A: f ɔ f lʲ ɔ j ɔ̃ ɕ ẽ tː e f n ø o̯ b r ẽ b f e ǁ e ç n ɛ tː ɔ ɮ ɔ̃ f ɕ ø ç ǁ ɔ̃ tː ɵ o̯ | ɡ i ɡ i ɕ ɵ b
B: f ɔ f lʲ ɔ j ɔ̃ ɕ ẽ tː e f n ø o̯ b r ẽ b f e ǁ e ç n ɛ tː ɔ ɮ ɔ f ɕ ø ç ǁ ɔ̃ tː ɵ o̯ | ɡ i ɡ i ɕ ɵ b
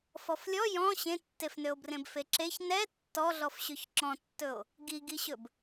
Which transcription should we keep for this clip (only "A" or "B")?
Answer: B